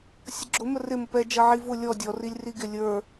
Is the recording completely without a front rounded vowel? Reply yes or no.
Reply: yes